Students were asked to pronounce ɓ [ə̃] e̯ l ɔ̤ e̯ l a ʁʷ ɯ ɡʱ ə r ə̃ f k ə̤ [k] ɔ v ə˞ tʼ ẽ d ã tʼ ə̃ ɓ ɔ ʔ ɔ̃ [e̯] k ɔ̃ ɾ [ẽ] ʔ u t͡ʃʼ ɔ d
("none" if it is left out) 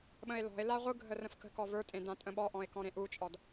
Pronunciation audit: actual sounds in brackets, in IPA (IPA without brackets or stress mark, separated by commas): ə̃, k, e̯, ẽ